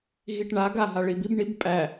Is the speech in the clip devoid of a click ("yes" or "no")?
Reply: yes